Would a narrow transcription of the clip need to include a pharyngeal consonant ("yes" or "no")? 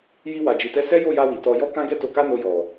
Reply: no